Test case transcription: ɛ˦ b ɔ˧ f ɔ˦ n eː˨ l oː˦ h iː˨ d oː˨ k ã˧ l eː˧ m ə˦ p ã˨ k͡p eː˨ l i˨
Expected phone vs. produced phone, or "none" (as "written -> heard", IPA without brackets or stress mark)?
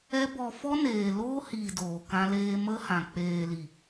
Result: p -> h